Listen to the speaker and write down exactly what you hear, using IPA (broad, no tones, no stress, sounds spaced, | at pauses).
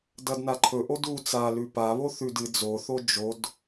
d ɐ d n a ǃʰ ɵ ʔ o d u t͡s a l ʉ p a β o θ ʉ d ɨ d͡z o θ o d͡ʒ o d